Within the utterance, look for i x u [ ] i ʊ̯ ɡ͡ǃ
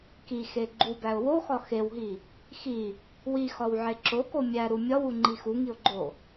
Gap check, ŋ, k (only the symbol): ŋ